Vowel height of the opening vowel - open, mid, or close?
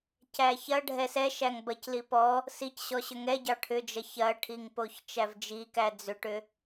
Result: open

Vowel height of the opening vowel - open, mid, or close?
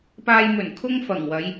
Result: open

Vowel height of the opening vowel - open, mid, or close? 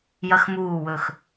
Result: open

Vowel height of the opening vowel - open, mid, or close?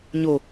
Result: mid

